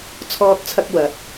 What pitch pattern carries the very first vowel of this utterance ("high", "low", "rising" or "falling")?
high